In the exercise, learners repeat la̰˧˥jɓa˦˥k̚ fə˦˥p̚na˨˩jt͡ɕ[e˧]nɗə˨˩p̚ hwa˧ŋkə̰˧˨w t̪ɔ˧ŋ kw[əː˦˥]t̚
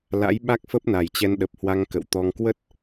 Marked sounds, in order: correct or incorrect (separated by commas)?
incorrect, incorrect